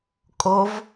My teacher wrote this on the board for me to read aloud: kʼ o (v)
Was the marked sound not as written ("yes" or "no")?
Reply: no